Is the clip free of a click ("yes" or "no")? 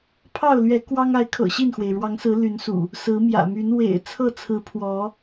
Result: yes